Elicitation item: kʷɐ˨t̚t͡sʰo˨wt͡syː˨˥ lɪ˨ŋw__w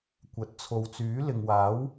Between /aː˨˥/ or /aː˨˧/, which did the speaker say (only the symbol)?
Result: aː˨˥